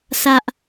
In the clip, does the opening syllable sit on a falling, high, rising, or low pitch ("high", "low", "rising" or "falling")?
high